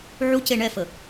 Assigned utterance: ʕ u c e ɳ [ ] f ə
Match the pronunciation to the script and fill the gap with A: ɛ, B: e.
A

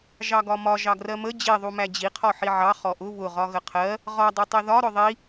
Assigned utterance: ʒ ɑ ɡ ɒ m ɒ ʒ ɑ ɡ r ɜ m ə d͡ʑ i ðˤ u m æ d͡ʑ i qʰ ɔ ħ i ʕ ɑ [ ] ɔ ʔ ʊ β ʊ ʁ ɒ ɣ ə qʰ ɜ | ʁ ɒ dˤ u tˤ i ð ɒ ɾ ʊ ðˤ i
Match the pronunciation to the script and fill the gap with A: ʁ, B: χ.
B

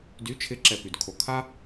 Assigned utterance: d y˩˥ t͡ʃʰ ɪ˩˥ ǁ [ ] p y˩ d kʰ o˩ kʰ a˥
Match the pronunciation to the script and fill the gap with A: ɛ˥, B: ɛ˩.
B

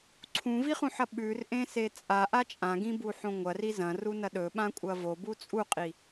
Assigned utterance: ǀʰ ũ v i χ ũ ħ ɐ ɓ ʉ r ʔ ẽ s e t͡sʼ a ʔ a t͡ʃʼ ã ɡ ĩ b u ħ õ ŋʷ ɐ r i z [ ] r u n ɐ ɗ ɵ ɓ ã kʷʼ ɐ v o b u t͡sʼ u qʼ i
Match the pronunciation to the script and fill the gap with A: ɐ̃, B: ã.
A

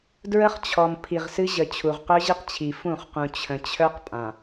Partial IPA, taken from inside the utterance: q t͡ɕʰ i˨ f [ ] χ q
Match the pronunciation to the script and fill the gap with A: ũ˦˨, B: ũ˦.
A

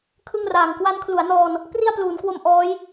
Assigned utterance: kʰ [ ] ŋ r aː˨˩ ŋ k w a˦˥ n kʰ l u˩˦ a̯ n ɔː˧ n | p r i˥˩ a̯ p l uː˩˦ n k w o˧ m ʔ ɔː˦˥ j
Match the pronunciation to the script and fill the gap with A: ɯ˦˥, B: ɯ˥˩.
B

